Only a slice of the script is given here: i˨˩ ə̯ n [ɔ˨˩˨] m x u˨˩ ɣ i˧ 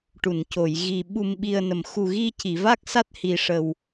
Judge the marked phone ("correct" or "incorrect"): incorrect